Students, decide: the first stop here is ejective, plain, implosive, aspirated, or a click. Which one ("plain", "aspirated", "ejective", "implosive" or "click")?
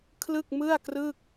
aspirated